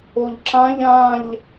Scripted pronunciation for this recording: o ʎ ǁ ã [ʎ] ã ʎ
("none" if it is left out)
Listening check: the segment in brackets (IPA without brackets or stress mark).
ʎ